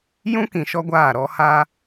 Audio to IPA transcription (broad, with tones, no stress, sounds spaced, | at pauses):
j ũ˦ k ĩ˨ ʃ ɔ˦ ɡʷ aː˦˨ ɾ ɔ˦ h a˦